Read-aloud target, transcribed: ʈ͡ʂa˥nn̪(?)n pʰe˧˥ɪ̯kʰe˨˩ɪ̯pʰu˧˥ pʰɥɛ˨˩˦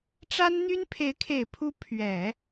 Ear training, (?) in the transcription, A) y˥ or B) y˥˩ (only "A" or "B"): A